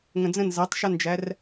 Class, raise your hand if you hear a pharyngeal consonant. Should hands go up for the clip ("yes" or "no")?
no